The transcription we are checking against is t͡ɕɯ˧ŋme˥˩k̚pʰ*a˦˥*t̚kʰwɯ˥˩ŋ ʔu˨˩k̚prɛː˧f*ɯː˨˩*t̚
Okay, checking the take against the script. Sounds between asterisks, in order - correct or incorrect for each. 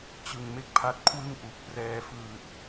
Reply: correct, correct

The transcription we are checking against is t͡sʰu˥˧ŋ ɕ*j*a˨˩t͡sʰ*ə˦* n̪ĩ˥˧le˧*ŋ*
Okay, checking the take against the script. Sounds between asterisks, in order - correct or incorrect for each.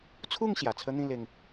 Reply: correct, correct, correct

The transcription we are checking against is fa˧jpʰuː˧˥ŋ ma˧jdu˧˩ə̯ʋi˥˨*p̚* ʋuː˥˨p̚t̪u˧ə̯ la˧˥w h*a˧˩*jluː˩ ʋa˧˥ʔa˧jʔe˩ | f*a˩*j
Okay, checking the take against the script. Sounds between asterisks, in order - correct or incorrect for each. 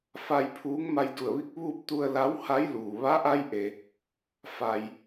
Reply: incorrect: k̚, incorrect: a˧˥, correct

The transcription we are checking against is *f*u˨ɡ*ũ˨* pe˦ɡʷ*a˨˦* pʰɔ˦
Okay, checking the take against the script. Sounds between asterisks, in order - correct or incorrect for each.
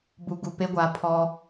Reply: incorrect: b, incorrect: u˨, correct

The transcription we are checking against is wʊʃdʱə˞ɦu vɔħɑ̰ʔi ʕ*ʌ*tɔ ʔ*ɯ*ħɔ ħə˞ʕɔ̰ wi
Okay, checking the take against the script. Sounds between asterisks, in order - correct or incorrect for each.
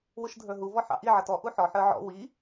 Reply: correct, incorrect: u

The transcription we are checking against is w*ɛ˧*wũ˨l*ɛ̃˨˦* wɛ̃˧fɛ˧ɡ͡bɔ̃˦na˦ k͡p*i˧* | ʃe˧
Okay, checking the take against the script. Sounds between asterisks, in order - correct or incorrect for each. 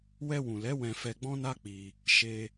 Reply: correct, incorrect: ɛ˨˦, correct

